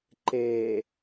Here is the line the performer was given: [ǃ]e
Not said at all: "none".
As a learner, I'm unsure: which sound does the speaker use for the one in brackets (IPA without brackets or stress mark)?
ǃ